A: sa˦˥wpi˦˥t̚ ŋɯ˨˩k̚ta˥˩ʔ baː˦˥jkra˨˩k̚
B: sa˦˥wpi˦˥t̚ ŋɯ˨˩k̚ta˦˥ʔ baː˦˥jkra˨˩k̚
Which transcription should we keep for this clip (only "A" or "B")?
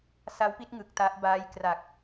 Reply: B